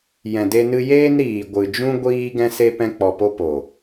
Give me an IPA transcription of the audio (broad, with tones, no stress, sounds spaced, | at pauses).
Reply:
j ɛ̃˨ d e˧ n ɨ˧ j eː˦ n ɾ iː˨ ɡʷ ɨ˨ d͡ʒ ũ˦ ɡʷ iː˧ ɡ ɛ̃˧ s e˧ p ɛ̃˧ k͡p ɔ˨ p o˧ p o˨